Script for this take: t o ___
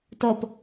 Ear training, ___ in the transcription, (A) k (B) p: B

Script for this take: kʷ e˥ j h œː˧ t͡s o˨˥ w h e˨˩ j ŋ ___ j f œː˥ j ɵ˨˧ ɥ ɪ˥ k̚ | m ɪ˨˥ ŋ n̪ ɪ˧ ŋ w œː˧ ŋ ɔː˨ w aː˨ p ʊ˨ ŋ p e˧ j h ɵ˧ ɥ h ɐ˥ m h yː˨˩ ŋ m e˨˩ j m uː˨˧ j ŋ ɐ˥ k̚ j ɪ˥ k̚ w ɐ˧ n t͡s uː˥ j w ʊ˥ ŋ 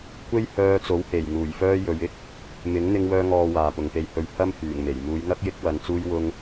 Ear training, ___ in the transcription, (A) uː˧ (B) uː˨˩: B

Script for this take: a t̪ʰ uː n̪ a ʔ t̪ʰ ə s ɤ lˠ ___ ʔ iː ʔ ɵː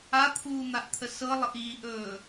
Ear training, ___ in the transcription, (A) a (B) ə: B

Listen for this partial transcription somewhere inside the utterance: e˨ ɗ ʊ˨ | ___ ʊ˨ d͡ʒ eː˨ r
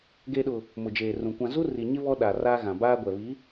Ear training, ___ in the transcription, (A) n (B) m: B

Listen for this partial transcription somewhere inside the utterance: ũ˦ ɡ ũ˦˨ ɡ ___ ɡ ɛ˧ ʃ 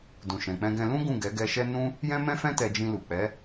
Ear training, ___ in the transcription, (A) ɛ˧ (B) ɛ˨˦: B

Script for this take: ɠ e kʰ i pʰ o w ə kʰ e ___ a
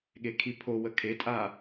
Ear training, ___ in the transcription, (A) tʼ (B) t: A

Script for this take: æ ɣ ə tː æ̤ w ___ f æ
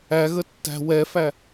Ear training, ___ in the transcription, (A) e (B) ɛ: B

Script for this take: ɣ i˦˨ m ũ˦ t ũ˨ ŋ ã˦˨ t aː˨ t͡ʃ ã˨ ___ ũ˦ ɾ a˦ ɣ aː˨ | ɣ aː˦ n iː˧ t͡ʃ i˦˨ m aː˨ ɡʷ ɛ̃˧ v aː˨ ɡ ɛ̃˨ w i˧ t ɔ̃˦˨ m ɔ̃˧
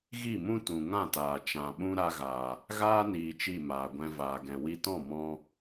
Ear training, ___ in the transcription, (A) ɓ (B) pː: A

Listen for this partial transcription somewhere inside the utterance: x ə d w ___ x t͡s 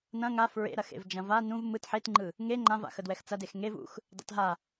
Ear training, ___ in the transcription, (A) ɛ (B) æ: A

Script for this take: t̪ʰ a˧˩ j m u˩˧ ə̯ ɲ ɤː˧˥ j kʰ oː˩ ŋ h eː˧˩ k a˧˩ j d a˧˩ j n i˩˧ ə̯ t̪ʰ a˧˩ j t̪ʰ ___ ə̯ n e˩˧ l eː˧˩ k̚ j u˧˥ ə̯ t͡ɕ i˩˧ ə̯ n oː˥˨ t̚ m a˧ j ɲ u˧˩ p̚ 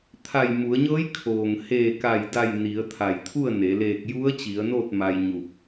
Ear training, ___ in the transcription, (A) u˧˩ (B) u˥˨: B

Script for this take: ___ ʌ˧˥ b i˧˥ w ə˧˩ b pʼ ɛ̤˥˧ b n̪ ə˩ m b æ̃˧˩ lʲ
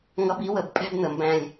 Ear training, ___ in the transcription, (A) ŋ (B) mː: A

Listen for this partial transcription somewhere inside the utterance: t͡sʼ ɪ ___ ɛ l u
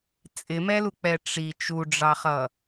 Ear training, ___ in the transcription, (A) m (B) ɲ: A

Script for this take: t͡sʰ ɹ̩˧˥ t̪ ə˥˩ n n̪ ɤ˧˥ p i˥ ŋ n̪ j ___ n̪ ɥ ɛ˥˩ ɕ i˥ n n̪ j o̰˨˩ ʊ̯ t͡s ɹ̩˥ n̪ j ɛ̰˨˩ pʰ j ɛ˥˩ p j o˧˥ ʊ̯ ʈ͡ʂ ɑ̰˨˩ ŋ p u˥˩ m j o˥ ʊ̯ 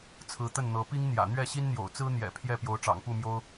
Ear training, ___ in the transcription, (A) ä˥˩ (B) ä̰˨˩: B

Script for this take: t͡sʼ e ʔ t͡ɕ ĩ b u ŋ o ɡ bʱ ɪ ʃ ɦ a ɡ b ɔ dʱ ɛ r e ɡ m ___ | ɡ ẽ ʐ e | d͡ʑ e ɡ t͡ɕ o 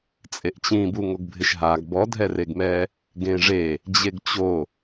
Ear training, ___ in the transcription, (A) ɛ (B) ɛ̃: A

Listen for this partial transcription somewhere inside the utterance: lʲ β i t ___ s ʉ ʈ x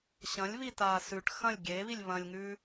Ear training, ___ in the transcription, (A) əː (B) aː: B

